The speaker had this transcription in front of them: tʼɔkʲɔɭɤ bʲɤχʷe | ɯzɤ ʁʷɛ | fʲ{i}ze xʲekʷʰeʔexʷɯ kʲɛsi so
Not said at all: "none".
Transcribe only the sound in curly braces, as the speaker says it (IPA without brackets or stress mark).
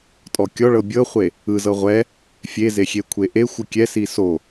e